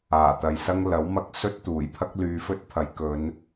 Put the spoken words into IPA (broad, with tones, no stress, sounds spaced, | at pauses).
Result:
aː˨˩ t̪ ɐ˨ j s ɐ˥ ŋ l ɐ˨˥ w m ɐ˧ k̚ s ɵ˥ t̚ t̪ uː˨˩ j pʰ ɐ˥ k̚ l yː˧ f ɵ˥ t̚ pʰ ɐ˨˧ j k ɵ˨˧ n